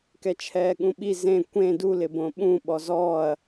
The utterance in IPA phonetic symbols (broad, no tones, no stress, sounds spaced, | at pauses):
k ɛ t͡ʃʰ ɛː ɠ ũ ɓ i z ẽ kʷ ẽ d u l ɪ b õ ɓ ũ ɓ ɔ z ɔː ɐ̯